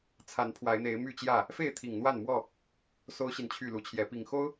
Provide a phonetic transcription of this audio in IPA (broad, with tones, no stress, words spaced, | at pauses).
t͡sʰa˨˦n pʰwa˨˦ɪ̯n̪e˨˦ɪ̯my˥˨t͡ɕjä˥˨ | fe˥˨ɪ̯t̪ʰi˨˩ŋn̪wa˥˨nmwɔ˥˨ | so˦ʊ̯ɕi˨n t͡ɕʰy˥˨lu˨˦t͡ɕʰjɛ˨˦ pi˨˩ŋ xo˦ʊ̯